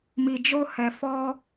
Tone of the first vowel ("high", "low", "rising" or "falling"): low